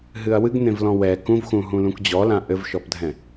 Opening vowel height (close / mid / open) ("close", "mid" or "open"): close